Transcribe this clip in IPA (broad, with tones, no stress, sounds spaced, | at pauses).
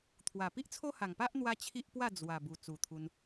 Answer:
t̪ʰ w a˨˩ p i˦ ʔ t͡sʰ o˦ h a˨˩ ŋ p a˦ ʔ n̪ w a˦ t͡ɕʰ i˦ ʔ p w a˥˧ d͡z w a˨˩ b u˨˩ t͡s u˨˩ t̪ʰ u˧ n